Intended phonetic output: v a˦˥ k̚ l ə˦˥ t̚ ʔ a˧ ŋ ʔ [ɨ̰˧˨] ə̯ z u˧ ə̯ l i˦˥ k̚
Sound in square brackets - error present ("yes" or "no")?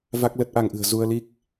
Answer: yes